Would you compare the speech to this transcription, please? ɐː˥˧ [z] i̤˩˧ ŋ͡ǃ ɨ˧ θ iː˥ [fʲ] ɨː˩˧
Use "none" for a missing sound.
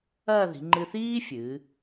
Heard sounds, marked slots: ð, fʲ

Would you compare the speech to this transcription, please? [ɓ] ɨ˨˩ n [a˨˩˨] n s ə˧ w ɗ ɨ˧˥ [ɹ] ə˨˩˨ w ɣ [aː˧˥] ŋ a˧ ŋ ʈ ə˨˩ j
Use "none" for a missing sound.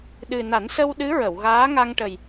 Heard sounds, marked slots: ɗ, a˨˩˦, ɹ, aː˧˥

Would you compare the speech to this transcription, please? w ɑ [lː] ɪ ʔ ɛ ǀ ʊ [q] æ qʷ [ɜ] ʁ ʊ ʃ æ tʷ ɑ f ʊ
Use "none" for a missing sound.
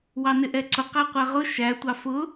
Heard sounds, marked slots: n, q, æ

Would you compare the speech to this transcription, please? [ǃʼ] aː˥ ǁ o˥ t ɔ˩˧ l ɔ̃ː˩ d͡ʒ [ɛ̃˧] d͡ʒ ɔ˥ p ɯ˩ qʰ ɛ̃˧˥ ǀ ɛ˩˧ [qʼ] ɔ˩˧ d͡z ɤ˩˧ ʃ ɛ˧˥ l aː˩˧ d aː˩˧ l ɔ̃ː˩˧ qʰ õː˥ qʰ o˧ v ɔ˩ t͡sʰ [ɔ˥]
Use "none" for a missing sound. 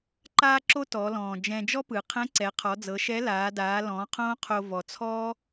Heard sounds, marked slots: ǃ, ɛ̃˧, qʰ, ɔː˥

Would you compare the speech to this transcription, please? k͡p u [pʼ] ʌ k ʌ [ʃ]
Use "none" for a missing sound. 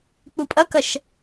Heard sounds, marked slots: pʼ, ʃ

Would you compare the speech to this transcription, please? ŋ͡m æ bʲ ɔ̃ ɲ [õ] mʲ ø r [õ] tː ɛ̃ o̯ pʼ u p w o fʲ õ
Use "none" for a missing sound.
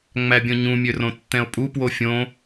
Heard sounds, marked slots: ũ, õ

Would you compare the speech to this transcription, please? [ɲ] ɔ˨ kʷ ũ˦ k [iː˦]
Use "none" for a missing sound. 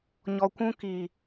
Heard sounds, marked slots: ɲ, iː˨

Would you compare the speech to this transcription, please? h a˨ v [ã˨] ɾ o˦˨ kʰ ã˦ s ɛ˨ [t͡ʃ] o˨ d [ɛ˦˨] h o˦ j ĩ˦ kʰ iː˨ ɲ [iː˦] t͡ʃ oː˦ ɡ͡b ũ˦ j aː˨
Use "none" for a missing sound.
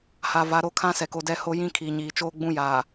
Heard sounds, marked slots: a˨, k, ɛ˦˨, iː˨

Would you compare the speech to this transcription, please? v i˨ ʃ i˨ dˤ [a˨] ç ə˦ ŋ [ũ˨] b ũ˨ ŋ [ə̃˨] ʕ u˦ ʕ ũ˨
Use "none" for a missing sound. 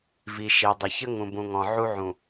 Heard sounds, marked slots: ə˨, ũ˨, ɔ̃˨

